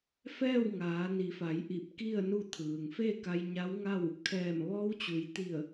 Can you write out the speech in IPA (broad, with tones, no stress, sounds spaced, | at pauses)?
f ɛː˥˨ w ŋ aː˩˧ n i˩˧ f a˩˧ j ʔ i˧˩ p̚ k i˥˨ ə̯ n u˥˨ t̪ʰ ɯː˩ ŋ f e˥˨ k a˧ j ɲ a˧˥ w ŋ a˥˨ w | kʰ ɛː˧˩ m ʋ ɔː˧˥ w t͡ɕ u˩˧ j t̪ i˧˩ ə̯